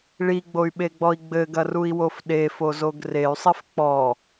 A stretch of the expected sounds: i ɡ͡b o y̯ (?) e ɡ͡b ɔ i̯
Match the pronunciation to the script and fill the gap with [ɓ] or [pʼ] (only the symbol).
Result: ɓ